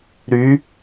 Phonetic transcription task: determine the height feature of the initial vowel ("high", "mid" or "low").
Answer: high